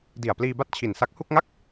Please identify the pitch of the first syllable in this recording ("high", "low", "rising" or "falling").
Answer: low